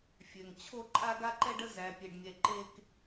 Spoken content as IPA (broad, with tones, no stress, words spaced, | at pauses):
fʲø˨ŋ t͡ɕʰo˦ ǃʼa˦ɡa˦ǃɛ˦ɖə˦ zæ˨pʲe˨ɖmʲɛ˨ ǃe˦k